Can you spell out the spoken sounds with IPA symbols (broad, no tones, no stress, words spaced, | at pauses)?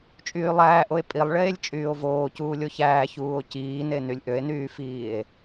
t͡ʃʼyːlˠæːʔoe̯ pʼilˠɭeːlʲ t͡ʃʼyːo̯voː cuːlʲoçæː çuːo̯ciːne nylʲʔøe̯nyːfiːe̯